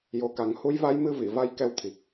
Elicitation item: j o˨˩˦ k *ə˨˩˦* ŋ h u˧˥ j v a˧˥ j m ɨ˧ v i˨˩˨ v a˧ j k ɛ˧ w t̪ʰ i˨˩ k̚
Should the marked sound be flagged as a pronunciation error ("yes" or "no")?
yes